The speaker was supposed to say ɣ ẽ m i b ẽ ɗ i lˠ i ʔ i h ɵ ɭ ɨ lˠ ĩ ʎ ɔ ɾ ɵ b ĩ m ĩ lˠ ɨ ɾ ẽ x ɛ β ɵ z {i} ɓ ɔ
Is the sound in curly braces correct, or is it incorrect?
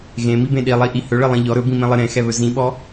incorrect